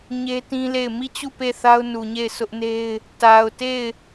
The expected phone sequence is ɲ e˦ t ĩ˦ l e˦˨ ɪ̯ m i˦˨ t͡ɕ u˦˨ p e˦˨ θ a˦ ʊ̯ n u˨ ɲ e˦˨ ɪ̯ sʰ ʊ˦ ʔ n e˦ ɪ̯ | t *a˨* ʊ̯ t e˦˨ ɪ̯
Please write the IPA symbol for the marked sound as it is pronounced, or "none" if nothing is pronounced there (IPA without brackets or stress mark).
a˨